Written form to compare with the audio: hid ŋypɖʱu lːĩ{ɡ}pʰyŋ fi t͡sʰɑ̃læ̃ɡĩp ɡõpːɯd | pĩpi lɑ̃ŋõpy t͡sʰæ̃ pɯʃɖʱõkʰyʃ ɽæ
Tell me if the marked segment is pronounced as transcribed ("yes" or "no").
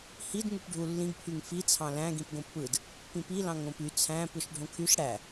yes